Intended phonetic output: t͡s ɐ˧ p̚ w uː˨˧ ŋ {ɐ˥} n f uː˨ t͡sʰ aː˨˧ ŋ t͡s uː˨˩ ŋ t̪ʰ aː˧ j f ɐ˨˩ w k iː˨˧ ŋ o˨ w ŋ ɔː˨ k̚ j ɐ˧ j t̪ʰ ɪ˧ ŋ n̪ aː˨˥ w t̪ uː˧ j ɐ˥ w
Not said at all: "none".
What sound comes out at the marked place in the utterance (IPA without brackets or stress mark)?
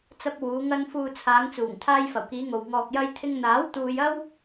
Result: ɐ˧